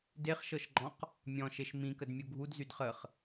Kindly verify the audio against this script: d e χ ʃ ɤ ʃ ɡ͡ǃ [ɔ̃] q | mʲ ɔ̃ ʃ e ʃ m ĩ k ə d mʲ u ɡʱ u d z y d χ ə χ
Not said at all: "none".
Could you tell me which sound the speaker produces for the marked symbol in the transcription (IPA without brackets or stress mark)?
ɔ̃